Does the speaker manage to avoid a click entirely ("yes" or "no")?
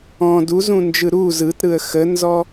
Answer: yes